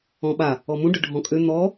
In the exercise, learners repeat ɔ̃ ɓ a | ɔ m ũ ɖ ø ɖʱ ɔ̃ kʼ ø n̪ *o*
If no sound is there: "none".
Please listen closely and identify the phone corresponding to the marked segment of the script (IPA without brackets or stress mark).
ɔ